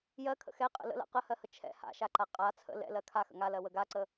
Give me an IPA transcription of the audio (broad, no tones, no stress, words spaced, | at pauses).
jɜkʰə̰ xɛqʼə̰ lə̰la̰ qəhɜhə t͡ʃʰɛ̰ ha̰ʃaǃa qʼa t͡sʰə̰ lɛ̰lɜ kʰaxə̰ ŋalɜwə ɡaǀə